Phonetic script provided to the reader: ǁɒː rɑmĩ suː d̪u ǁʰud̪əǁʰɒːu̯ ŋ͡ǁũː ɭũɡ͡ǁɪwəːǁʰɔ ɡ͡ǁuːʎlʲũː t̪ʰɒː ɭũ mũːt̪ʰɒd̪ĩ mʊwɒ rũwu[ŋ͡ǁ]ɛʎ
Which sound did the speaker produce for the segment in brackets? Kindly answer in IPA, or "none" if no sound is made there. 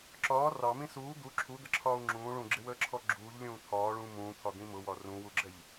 ɡ͡ǁ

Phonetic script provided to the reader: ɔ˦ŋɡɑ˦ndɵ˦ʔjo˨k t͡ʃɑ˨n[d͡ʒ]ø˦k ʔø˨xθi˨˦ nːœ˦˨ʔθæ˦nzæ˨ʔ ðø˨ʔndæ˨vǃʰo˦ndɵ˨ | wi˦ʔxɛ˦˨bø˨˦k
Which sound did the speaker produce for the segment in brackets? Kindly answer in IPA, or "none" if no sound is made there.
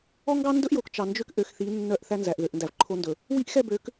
d͡ʒ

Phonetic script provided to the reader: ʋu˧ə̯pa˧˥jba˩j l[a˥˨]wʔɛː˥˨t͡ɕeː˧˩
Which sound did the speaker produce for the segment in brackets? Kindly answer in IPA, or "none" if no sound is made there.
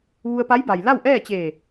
a˥˨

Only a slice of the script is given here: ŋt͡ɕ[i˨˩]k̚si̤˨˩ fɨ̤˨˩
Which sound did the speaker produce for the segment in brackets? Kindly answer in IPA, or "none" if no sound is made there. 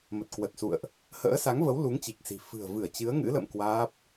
i˨˩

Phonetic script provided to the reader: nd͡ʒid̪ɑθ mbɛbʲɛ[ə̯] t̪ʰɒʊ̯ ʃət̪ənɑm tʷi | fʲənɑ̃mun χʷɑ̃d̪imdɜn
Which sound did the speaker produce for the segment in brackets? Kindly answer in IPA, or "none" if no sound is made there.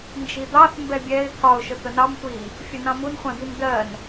ɪ̯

